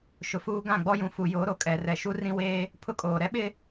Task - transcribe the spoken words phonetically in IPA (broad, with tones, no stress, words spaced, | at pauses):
ʃʊ˨fuː˦ ɡã˦˨ɡ͡bɔ˦jũ˨ fu˨jo˨˦ ɾo˨kʼɛ˨rɛ˨ ʃu˦rĩ˦ weː˦ | pʰʊ˦kʼoː˨ ɾɛ˦ɓɪ˦